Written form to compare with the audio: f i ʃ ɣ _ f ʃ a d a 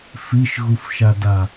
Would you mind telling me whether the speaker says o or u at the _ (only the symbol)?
u